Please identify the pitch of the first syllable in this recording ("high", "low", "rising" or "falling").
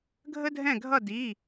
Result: high